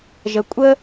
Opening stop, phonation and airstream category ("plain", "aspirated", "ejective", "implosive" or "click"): ejective